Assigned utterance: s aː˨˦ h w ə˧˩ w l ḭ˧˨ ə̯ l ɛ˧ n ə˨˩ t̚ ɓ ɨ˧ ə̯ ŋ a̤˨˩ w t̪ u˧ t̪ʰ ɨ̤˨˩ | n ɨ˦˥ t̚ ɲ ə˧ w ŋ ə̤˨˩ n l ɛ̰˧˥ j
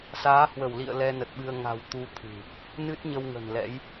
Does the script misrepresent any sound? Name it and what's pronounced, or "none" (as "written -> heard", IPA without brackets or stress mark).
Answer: none